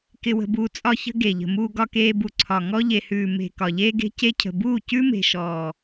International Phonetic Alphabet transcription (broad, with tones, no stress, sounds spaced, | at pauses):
k ɪ˧ w ə̤˧ b uː˧ t͡sʼ ɒ˧ ç ə̤˧ ɡ e˨ ʎ ə̤˨ m uː˧ ɡ ɒ˧ k eː˧ b u˨ ǀʰ ɒ˨ ŋ ɔ˧ ʎ e˨ h ʉː˨ m e̤˨ k ɒ˨ ʎ eː˧ ɡ e̤˧ c e˧ cʰ ə̤˨ b uː˦˨ c ʉ˦ m e̤˨ ʃ ɔː˨